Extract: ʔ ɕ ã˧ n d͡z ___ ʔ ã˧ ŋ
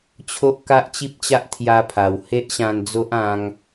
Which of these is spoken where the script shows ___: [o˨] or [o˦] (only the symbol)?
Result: o˦